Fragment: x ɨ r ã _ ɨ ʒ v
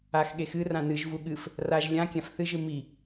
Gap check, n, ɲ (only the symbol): n